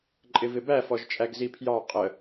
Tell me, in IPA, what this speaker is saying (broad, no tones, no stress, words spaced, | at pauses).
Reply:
ǃʼɪvɪbæ fɔʒt͡ʃʼæɡzipʰjɑ qʼə